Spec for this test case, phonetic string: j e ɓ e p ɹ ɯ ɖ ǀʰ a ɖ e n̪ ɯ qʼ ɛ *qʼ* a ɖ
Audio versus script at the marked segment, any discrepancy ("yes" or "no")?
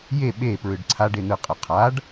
yes